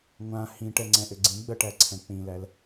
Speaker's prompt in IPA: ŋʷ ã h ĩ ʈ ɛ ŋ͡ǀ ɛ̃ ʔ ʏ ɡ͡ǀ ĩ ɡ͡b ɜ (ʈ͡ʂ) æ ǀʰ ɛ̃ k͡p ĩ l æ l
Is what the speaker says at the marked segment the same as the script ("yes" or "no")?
no